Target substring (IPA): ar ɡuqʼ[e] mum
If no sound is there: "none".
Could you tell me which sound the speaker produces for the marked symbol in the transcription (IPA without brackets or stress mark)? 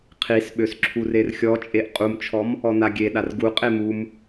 e